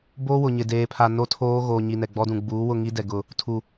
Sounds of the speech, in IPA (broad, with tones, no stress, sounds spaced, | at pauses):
b oː˦ w ʊ˨ ɲ ɪ˨ d eː˨ pʰ a˨ n o˦˨ tʰ oː˦ ɣ oː˨ ɲ i˨ n ɛ˨ ɡ͡b ɔ˦ d ũ˨ ɡ͡b uː˨˦ w ʊ˦˨ ŋ i˦ d ɛ˨ ɡ ʊ˦˨ | tʰ u˨